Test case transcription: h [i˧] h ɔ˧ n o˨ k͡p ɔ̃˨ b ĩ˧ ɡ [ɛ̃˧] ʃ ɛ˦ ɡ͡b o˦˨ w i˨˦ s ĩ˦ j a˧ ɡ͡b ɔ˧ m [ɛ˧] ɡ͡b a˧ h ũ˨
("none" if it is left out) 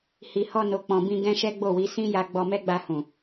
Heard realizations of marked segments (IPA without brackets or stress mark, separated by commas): i˨, ɛ̃˦, ɛ˦